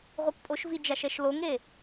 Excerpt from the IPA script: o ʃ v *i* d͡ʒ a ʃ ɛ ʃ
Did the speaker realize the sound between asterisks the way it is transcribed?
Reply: yes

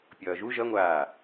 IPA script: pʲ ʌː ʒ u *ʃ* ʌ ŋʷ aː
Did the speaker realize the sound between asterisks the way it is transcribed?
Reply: no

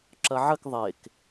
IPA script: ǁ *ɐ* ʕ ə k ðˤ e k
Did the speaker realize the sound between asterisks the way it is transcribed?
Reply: yes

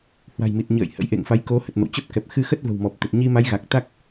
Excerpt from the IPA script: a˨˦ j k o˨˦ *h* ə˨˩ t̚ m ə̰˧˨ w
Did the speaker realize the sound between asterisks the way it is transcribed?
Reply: yes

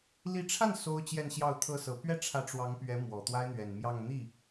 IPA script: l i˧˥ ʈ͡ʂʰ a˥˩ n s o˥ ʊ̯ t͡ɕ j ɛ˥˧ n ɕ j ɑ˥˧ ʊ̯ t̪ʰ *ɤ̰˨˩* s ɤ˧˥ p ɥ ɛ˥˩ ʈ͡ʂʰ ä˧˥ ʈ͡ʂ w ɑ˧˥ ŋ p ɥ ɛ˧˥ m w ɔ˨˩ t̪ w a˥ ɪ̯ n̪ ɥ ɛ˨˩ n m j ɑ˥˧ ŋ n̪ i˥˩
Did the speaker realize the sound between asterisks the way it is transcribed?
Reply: no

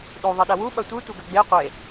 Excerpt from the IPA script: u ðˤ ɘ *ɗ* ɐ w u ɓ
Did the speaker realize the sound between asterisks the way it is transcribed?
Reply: yes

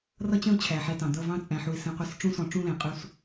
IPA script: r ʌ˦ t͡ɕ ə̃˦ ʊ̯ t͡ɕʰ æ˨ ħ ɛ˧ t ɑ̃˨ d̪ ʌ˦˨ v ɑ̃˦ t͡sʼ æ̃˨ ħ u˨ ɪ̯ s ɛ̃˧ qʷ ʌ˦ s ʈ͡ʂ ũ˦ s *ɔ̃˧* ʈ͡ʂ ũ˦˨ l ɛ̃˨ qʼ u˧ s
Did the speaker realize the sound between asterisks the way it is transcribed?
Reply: yes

